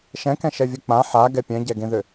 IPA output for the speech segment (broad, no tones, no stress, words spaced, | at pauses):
ʃɛ̃kɛ̃ ʃɛvʲɛk͡pã ħaɡɛ pʲɛ̃ɟɛɡẽðʏ